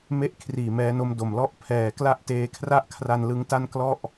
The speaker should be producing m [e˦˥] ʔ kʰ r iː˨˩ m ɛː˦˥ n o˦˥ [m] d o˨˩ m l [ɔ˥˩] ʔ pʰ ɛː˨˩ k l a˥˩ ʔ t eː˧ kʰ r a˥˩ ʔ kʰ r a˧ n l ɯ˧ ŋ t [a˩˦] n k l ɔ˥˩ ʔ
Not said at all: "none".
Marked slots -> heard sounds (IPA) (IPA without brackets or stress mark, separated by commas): e˥˩, m, ɔ˥˩, a˥˩